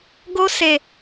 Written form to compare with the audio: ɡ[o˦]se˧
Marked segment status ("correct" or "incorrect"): correct